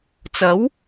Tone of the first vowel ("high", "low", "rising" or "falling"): rising